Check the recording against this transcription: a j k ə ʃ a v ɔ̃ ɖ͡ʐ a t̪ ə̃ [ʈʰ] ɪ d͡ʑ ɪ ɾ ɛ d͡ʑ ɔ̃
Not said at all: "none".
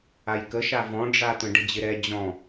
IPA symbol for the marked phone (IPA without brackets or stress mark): ɖ